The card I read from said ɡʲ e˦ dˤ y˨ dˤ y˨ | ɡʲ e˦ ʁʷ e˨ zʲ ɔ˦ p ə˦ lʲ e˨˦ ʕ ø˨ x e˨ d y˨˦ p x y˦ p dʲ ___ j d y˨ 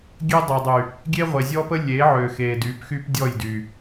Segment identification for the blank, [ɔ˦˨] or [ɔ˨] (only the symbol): ɔ˦˨